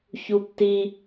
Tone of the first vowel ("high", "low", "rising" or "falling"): low